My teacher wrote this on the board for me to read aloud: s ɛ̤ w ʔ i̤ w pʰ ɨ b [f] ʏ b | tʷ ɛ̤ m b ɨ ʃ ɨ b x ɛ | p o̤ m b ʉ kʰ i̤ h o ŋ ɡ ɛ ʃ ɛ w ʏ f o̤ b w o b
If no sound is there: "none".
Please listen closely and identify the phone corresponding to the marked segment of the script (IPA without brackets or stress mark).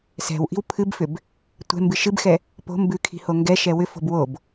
f